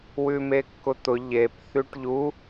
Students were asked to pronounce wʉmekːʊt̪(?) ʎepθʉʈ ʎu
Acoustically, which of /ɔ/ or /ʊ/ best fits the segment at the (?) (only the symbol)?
ʊ